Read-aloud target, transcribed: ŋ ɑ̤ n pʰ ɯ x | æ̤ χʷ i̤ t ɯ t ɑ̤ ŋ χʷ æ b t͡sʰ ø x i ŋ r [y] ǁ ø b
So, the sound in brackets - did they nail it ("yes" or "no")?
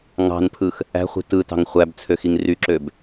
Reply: yes